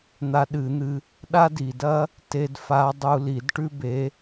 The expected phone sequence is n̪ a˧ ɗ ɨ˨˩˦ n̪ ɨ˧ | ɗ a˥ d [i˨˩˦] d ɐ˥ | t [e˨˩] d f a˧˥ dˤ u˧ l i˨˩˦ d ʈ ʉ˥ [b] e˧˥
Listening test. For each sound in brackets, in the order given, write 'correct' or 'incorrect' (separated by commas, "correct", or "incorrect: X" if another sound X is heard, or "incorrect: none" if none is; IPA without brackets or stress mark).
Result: incorrect: i˨˩, incorrect: e˧, correct